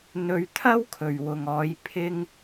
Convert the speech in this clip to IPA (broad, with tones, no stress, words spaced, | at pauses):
n̪ɵ˧ɥt̪ʰɐ˥wkʰɵ˨ɥ wʊ˨ŋɔː˨˧j pʰɪ˧ŋ